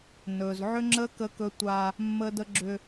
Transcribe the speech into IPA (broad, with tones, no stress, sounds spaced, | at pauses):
n ɵ˨ z ʕ ʏ˦ ŋ͡ǁ ə˦ k ə˦ k ɵ˦ tʷ a˦ | mː ə˦ d ə˦ ɡ͡ǁ ʏ˦